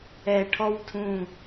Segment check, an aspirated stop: present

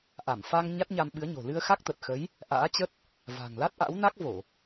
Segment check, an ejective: absent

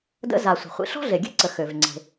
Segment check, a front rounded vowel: present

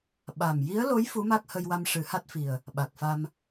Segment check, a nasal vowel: absent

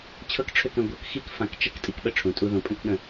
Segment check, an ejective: present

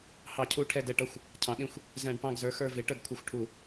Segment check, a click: absent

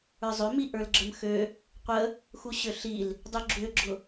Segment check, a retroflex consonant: absent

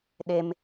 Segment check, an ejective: absent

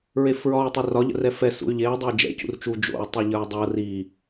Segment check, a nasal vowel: absent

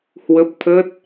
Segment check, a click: absent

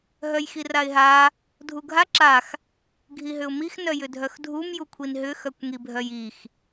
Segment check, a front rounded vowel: present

